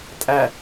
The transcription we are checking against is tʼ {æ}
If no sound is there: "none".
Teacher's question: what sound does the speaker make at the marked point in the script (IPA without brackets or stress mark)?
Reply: æ